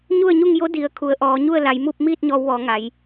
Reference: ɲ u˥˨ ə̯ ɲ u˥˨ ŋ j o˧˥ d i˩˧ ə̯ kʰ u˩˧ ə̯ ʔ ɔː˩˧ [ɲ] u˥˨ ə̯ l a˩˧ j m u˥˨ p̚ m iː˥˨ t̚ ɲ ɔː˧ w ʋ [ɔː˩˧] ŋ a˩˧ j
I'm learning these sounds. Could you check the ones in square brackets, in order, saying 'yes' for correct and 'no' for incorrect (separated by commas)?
yes, yes